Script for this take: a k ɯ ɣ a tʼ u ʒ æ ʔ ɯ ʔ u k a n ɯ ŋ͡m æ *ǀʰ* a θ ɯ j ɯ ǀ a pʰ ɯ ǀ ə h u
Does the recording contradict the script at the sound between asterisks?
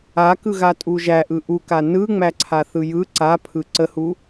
no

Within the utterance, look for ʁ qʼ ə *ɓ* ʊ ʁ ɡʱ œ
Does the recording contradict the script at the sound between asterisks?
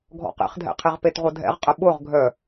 no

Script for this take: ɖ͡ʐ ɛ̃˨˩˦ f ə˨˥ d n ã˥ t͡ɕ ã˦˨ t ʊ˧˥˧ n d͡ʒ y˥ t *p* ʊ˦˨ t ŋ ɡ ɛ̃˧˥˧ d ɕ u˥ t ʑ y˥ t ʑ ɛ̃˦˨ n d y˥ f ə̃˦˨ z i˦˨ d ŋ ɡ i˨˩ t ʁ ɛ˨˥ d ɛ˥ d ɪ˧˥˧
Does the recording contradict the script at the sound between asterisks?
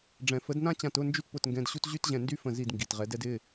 no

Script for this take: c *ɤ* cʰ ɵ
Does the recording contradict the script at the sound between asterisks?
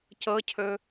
no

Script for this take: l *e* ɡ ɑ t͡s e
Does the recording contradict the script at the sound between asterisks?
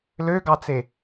yes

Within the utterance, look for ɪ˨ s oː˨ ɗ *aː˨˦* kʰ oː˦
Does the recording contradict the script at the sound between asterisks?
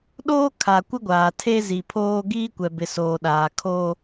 yes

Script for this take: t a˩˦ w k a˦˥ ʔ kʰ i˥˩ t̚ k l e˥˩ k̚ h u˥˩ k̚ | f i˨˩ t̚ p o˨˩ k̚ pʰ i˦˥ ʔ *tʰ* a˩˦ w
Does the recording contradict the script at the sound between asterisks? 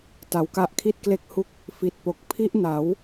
yes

